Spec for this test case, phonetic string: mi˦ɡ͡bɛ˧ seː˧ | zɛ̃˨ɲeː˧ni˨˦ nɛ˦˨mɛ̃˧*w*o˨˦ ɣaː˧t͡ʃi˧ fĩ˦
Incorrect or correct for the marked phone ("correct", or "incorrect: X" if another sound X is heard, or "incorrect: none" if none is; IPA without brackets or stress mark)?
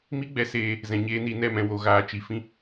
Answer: correct